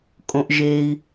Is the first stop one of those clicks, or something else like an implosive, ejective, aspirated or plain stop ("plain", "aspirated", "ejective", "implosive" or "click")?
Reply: ejective